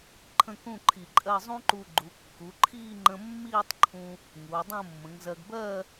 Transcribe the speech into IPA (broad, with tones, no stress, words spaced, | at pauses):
ǃʰə̃˥˧kũ˥˧ǃʰi˧˩ǃʼɜ˥˧ zˤũ˥ǃu˧ɡ͡ǃu˩˧ kːu˩˧ǃʰiː˥˧ŋ͡ǃə̃˧ mːiː˥˧tˤǃʰũ˧ | ŋuː˩˧dˤə̃ː˥˧mːə̃˩˧ŋzɜ˧ɡ bɜ˥˧